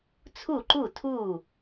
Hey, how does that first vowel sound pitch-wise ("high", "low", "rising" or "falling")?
falling